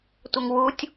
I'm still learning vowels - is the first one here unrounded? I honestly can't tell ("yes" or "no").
yes